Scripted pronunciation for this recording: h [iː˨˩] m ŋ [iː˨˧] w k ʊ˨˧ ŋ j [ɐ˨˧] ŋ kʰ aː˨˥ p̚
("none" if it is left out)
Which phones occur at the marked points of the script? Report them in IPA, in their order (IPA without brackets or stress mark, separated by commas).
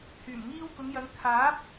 yː˨˩, iː˧, ɐ˨˧